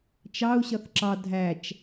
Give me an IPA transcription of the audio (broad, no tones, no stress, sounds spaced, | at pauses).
t͡ʃ ɑ u̯ ɕ ʌ θ ǁ ɑ dʱ æ t͡ʃ